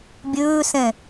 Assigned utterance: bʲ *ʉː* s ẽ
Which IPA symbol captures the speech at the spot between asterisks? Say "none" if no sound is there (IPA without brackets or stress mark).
ʉː